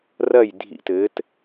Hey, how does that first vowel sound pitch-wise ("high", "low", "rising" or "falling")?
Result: falling